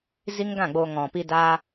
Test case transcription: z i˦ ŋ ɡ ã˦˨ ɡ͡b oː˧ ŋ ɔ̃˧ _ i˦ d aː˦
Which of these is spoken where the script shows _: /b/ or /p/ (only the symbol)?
p